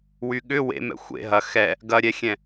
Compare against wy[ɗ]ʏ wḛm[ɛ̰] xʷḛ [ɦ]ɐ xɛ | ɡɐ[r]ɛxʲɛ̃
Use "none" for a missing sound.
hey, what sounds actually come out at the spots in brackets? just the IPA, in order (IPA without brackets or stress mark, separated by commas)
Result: ɠ, ɛ̰, ɦ, ɾʲ